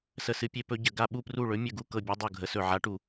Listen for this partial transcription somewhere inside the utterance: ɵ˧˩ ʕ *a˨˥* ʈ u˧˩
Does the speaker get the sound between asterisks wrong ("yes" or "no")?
no